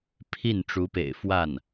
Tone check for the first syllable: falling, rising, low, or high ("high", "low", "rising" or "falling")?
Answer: falling